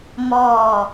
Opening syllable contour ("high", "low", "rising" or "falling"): low